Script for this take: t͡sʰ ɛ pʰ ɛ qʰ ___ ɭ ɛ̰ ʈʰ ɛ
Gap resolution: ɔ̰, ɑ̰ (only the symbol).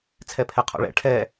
ɔ̰